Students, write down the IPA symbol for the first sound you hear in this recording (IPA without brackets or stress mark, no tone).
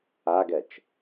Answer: a